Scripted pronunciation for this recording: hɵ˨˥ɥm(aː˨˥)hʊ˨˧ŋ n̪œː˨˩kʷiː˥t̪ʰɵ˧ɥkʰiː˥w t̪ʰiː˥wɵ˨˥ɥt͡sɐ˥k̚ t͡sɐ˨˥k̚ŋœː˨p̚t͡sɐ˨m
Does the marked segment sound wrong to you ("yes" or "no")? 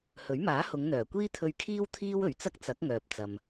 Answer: no